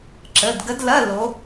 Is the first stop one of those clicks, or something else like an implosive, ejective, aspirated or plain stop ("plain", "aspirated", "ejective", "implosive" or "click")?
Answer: click